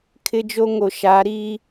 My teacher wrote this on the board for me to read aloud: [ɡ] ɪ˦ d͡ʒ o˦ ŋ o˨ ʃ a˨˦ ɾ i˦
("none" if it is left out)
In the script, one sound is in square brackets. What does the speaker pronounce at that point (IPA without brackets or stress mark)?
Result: kʰ